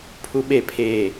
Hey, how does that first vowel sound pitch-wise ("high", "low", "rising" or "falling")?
high